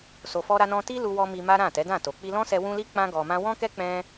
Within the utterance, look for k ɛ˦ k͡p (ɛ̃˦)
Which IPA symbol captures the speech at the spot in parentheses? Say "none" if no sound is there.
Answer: ɛ̃˦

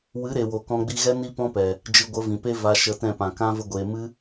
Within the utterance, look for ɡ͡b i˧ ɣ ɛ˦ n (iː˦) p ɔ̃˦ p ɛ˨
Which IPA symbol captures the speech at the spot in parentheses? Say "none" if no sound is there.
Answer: i˦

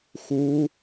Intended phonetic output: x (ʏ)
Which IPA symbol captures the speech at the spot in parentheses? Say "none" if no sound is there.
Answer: u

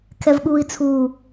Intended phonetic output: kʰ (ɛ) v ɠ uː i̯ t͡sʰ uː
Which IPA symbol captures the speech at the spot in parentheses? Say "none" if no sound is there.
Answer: ɛ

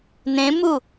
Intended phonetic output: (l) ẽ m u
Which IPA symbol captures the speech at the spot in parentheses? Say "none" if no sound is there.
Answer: n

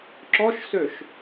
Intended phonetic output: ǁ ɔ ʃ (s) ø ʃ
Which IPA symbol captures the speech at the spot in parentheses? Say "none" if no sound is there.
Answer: s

